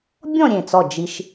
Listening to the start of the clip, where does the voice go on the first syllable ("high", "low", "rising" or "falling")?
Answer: falling